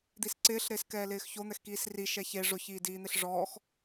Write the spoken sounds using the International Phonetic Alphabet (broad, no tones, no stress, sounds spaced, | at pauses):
d̪ i s ǀ ɪː ɬ ɾ ɪː s k ɛː l ɪː x ç o n̪ ɛ x k iː s r i ʃ ɛ ç e ʐ ʊ ç iː d iː n̪ ɪ ɬ ʐ ɔː x